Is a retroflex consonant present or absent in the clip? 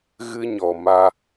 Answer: absent